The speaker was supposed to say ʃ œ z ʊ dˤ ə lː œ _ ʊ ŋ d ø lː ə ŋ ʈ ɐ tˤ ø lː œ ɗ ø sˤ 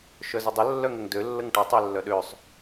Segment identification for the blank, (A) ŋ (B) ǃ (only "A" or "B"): A